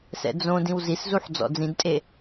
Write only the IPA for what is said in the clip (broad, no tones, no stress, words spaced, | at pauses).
sɛ̰d͡zõdĩw ziszuħ d͡zɔ̰d͡zĩdtʼe